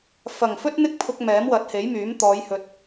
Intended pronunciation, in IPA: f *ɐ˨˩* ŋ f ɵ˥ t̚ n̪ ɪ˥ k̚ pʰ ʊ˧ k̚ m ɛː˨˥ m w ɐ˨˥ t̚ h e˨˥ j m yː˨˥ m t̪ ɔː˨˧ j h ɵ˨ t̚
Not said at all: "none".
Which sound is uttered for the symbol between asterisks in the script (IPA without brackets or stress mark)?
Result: ɐ˨˩